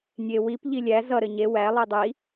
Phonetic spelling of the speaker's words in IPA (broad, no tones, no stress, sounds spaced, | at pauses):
nʲ e w i p ʎ i lʲ æ z ʌ ɾ ɘ ɲ e w æ lˠ i dˤ i